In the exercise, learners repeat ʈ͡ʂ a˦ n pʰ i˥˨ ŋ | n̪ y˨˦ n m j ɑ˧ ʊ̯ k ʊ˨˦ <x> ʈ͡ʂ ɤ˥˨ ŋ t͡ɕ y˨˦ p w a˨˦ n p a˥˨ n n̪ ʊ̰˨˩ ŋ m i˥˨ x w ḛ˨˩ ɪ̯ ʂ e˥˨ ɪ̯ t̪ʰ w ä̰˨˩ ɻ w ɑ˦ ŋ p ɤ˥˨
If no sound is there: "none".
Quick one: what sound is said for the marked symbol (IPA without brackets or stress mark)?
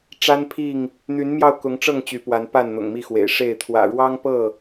ŋ